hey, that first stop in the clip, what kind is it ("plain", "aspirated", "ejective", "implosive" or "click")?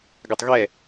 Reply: plain